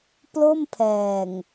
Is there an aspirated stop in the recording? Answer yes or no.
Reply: yes